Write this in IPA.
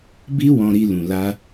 b i˦ w ɔ̃˧ ɾ i˧ l ũ˨ l a˧

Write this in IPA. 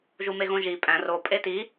ʒ u m e ɣ õ ʒ i pʼ æ̃ r o pʼ e t i

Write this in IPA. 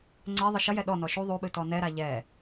ŋ͡ǀ ɛ ðˤ ɨ ʃ ɐ j ɛ ɗ ɔ n ɔ ʃ u ðˤ u ɓ ɨ t ɔ n ɛ ɾ a ʎ ɛ

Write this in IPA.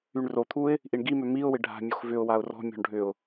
y ɳ r o t̪ʰ u ɪ̯ | ʔ i ɳ ɡ i m ø m i ʊ̯ w ɪ ɖʱ a̤ mʲ o x v ʏ ʊ̯ w a ʊ̯ r ɔ̤ mʲ ɔ̤ ɳ ɖʱ ʏ ʊ̯

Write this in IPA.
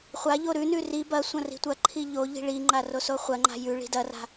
χʷ a ʎ o ɾ ʉ n ʉ r i b ɐ sʷ ɐ̃ r i̤ tʷ ɐ ǃʰ i ʎ o ʎ i̤ ɭ i ŋ͡ǃ a r o s o χʷ ɐ ŋ͡ǃ a̤ j ʉ ɭ i̤ d ɐ r a̤

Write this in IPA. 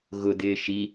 ɣ ʊ d̪ ɪː ʃ i

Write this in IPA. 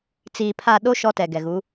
t͡s iː˨ pʰ a˦˨ ɗ o˦ ʃ ɔ˦ t ɛ˨ ɡ ɛ˨ ɣ u˨˦

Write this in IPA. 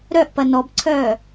ɾ œ ʔ p ɐ n ɔ b ǀʰ œː

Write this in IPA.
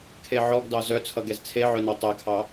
kʰ e ʕ ɔ ɡ d ɑ z œ t͡sʰ ʌ ɡ ɛ z t͡sʰ e ʕ œ n ʌ tˤ ɛ kʰ ɑ

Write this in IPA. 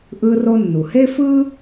ʔ ɯː˧ r o˧ nː u˩ h e˥ f ɯː˥

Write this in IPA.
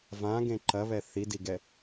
v ã ɡ ẽ ǃ ɐ β ɛ θ i d i ɡ ɛ

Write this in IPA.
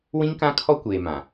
w ĩ˦ ŋ k ã˦ kʰ ɔ˦ kʷ eː˨ m ã˨

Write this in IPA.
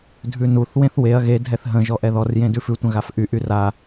dʱ ʉ n u θ w ẽ θ w e ɐ̯ ɣ e dʱ ɛ θ ɦ ə̃ ʒ ɔ ʔ ɛ ð ɔ r j ẽ d ʉ f ʉ tʷ ə̃ ɣ a f ʔ y ʔ y r a

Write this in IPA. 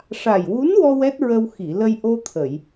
ʂ a˨˩ j w u˧˥ n w ɔ˧ w ɛ˦˥ t̚ ɹ ə˧ w x i˨˩˨ l ə˧ j ʔ o˧ t̪ʰ ə˨˩˨ j

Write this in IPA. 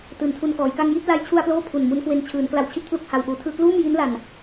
t ɯː˩˦ n tʰ u˧ n k ɔː˩˦ j k a˥˩ ŋ j i˥˩ t̚ l a˧ j t͡ɕʰ u˧ a̯ p l oː˥˩ pʰ u˨˩ n m u˦˥ n k w e˧ n t͡ɕʰ ɯː˩˦ n k l a˧ w t͡ɕʰ i˦˥ t̚ pʰ l u˥˩ k̚ h a˧ w ʔ uː˨˩ tʰ ɯː˧ k l uː˥˩ m j i˦˥ n l a˨˩ n

